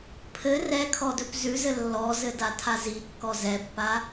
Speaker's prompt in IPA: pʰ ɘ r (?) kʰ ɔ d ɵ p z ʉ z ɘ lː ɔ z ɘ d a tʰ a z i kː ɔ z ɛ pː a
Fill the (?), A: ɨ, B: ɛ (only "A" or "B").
B